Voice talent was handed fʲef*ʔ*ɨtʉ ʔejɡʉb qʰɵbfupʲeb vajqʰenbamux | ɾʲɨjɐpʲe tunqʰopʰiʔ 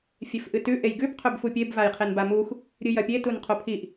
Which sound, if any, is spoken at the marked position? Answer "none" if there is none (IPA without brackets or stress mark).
ʔ